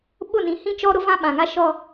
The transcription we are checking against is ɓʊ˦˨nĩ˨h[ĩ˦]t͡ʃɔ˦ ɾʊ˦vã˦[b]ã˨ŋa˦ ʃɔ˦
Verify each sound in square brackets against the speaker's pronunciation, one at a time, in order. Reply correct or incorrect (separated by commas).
correct, incorrect